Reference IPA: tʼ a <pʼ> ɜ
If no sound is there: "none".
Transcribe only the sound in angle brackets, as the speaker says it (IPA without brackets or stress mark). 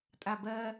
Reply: b